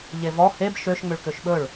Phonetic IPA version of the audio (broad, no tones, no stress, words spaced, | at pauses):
ʎevɔ heb ʃøʃ ŋ͡møɭkøʃɓɵɭ